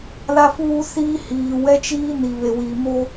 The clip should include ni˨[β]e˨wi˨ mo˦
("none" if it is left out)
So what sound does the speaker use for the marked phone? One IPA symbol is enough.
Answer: β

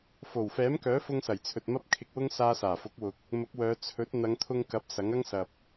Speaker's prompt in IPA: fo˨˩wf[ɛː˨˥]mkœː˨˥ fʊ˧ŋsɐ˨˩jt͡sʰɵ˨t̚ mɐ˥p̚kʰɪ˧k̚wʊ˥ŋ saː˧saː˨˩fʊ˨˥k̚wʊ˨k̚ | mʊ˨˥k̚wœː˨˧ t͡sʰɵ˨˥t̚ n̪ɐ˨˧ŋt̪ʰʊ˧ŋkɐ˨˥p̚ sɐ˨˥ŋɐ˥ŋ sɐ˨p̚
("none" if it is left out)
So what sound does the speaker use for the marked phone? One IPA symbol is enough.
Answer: ɛː˨˥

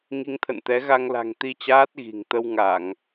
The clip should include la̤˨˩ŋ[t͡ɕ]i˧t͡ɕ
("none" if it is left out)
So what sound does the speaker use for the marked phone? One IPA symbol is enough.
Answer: t̪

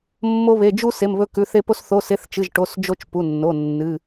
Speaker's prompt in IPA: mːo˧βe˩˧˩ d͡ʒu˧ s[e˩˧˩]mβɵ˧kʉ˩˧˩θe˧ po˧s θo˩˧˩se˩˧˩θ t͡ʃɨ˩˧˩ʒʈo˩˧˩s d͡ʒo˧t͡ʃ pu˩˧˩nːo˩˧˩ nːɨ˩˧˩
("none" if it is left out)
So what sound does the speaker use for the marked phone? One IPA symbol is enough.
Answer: e˩˧˩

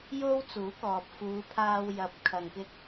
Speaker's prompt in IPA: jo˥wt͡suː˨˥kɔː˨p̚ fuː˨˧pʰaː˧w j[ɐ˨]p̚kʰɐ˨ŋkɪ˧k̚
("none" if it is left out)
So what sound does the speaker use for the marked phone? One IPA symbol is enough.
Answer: ɐ˨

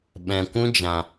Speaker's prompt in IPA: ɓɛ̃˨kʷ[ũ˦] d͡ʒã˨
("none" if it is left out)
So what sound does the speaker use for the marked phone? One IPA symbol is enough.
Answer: ũ˦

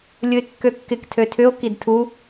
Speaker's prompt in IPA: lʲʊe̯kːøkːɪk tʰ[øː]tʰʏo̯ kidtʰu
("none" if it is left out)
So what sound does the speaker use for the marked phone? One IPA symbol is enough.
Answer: ø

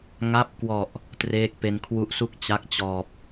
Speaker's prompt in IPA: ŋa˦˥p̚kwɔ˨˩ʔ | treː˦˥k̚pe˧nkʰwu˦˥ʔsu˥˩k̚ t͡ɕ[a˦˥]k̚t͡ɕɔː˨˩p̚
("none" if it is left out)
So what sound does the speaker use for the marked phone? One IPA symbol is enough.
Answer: a˦˥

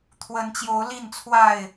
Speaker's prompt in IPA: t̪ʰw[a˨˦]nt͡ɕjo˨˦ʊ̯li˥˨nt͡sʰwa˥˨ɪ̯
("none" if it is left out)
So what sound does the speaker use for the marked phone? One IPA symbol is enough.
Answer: ə˨˦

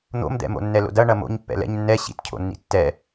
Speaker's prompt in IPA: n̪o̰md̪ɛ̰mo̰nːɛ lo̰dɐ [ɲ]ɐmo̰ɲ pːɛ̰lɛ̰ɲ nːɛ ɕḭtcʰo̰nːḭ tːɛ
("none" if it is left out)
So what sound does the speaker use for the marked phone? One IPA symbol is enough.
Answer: ɳ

